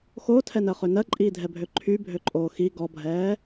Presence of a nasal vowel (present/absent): absent